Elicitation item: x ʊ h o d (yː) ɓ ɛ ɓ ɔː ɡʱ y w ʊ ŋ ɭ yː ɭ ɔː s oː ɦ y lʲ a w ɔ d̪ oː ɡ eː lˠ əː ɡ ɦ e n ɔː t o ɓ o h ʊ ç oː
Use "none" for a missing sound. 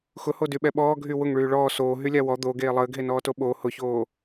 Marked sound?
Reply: y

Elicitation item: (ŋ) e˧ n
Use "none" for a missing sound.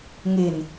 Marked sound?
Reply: ŋ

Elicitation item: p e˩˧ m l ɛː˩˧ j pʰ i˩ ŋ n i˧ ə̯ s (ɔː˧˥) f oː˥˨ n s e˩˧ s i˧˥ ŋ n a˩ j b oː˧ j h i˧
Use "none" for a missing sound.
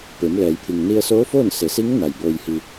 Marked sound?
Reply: oː˧˥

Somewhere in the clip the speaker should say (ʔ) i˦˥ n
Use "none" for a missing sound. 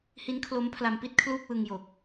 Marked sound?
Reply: h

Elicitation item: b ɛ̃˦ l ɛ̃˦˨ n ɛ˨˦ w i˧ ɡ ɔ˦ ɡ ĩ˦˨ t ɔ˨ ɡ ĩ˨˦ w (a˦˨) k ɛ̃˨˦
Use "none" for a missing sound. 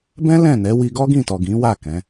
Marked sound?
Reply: a˦˨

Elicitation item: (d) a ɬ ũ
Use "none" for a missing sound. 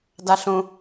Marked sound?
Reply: d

